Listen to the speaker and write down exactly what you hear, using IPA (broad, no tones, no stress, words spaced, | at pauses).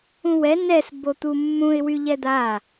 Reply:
ũwɛ nɛs bot̪umːũɪ̯ wyʎɛd̪a